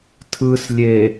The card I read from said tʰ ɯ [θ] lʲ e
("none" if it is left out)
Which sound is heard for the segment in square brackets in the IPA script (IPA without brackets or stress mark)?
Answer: s